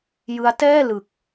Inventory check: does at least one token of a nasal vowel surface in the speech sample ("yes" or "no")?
no